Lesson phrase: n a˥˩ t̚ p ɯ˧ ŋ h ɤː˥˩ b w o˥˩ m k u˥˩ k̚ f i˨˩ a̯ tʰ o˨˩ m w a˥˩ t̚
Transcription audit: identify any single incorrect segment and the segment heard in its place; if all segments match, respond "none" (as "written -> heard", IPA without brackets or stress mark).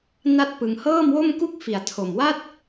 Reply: b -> m